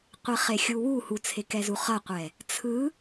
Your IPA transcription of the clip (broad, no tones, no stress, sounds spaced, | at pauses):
qʷ i χ e xʲ u w u h u t͡sʰ e k ɛ z u χ ʌ qʷ ɛ | t͡sʰ ɯ